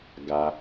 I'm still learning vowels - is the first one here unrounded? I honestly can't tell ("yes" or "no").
yes